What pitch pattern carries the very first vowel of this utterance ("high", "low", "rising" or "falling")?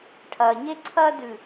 low